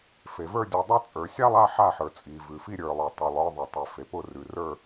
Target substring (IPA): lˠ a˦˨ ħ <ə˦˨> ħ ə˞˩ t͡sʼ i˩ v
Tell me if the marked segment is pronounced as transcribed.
no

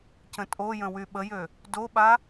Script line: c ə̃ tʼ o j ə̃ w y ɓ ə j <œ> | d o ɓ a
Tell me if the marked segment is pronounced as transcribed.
no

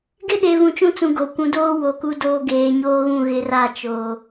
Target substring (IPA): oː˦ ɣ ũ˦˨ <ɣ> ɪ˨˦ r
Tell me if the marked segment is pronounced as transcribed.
yes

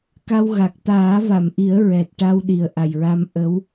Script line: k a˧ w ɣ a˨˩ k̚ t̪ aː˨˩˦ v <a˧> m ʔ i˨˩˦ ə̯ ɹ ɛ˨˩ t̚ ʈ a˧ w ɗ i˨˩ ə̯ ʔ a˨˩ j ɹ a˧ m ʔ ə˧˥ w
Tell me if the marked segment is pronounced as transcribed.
no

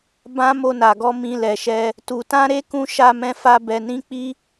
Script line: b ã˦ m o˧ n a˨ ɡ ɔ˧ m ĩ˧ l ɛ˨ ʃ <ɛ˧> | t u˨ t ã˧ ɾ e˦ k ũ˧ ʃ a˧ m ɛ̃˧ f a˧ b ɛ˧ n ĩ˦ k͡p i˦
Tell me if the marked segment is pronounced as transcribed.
yes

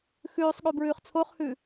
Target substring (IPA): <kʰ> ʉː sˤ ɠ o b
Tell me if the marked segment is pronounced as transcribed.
no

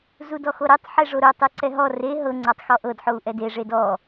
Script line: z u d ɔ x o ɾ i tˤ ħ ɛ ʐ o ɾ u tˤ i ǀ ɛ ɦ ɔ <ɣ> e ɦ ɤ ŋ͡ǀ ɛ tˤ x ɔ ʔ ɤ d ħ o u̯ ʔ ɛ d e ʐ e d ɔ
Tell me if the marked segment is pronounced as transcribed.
no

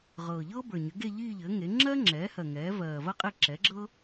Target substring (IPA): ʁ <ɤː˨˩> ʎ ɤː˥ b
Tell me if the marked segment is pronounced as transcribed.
yes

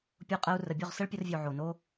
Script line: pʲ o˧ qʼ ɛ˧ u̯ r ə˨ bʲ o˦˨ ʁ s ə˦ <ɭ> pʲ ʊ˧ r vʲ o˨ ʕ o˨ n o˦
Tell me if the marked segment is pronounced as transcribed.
yes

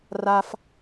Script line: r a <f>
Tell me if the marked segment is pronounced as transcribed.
yes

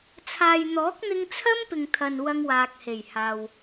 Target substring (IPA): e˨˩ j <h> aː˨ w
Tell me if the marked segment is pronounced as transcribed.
yes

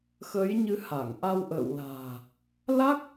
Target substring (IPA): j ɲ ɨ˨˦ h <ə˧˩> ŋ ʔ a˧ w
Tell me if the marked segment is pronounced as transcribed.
no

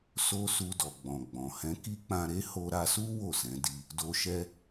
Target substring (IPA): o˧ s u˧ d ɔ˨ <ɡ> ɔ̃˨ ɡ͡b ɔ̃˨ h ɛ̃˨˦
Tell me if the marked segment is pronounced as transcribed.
no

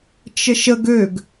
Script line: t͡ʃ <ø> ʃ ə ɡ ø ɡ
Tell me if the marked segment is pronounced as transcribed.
no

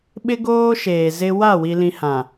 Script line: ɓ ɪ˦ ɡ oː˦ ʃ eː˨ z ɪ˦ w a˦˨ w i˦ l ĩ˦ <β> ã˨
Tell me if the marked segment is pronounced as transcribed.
no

